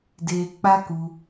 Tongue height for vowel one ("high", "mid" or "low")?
mid